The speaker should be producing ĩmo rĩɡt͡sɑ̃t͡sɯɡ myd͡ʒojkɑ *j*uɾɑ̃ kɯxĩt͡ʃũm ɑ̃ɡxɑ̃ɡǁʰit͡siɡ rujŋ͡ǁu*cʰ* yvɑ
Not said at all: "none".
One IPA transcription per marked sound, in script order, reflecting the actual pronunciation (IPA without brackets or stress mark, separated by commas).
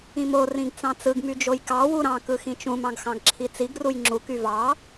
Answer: w, k